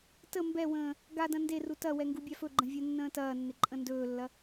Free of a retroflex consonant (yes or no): yes